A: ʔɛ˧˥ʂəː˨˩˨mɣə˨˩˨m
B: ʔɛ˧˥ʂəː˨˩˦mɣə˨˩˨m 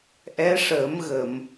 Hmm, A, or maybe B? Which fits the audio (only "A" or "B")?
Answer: B